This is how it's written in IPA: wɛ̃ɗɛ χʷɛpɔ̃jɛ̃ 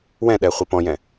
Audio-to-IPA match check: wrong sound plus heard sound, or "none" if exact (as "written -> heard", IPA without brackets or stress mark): none